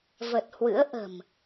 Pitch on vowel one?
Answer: low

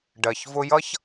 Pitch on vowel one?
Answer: low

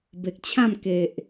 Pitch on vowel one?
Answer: low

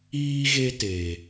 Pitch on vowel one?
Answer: high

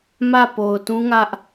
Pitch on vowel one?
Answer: falling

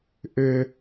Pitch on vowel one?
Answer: low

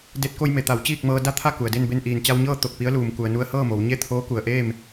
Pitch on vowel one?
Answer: rising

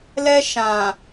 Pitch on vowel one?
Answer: high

